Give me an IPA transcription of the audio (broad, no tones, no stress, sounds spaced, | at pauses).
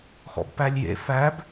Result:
x ɔ̰ b p æ lʲ j ḛ f æ b